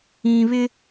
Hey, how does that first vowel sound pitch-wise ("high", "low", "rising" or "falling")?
low